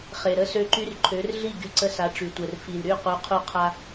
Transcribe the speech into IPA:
χ e˨ ɾ ə˥˨ s ø˦ ǃ y˦ r ǃʰ ø˨˥ r ɮ i˥˨ ɡ y˦ ǀ ə˦ s a˨˥ ʈ͡ʂ y˨ tʷ ɛ˨ r f i˨ l ɾ y˥˨ q u˨˥ qʰ u˦ qʰ a˦

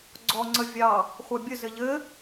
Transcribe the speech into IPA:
ɡ͡ǀ ɔ ŋ͡ǀ ə vʲ ɑ | χʷ ɑ bʲ ə z ɘ ʎ ɘ

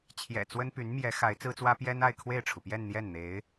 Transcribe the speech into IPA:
t͡ɕʰ j ɛ̰˨˩ t͡s w ə˥ n p y˧˥ n m j ɛ˧˥ x a˧˥ ɪ̯ t͡s ɹ̩˥ t͡s w ä˥ p j ɛ˥ n a˥˧ ɪ̯ kʰ w e˥˩ ɪ̯ ʈ͡ʂʰ u˩ p j ɛ˥˧ n n̪ j ɛ˥˩ n n̪ e˧˥ ɪ̯

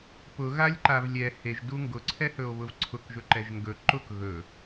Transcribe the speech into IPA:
p ʊ ɣ a lʲ ǃ a v lʲ ɛ h e ʒ d u ŋ ɡ ʊ ǀʰ ɛ h ɵ o̯ β ʊ v ǀʰ ʊ k ʒ ɵ ǃ ɛ ʒ ŋ ɡ ɵ ǃ ʊ k ɣ ɵ

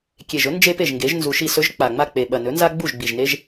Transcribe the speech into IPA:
kʲ e˨˩ ʒ ɵ˩˥ n d͡ʒ e˦ p e˥˩ ʒ ŋ ɡ e˩˥ ʒ n z u˨˩ ʃ i˥˩ s ɵ˦ ʒ k͡p a˨˩ ŋ͡m a˥˩ k͡p e˨˩ ɓ ɐ˨˩ n ɵ˩˥ n z a˦ ɡ͡b u˥˩ ʒ ɡ͡b i˨˩ ʒ n e˦ ʒ

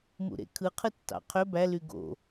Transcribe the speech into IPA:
m ṵ ɾ ḛ kʰ ɯ qʰ ɯ tː ɑ̰ qʰ ø b æ l y ɡ o̰

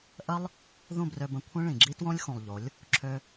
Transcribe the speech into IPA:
ʔ ə˦ lˠ | ð ũ˦˨ b r ø˧ b ə̃˧ kʷʰ ẽ˦ ɭ ĩ˨ ɡ͡ǁ i˦ t w õ˦ lʲ x ũ˨ lˠ ʎ o˨˦ lʲ | ǁʰ ø˦

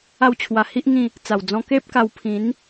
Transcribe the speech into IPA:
a˥˧ w t͡ɕʰ w a˧ h i˦ ʔ ŋ ĩ˥˧ | t͡s a˨˩ w d͡z ɔ̃˧ k e˦ p̚ k a˧ w pʰ ĩ˨˦ n

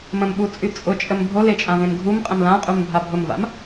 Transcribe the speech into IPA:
m ə̃ m ɓ u t͡sʼ y t͡sʼ ʊ t͡ʃʼ ə m bʱ o l e t͡ʃʼ ã v ẽ m ɡʱ u m qʼ ə̃ m l ã qʼ u m bʱ a bʱ ʊ m v a̰ m

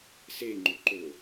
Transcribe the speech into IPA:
s e ŋ͡ǃ ɵ ǃ ɵ

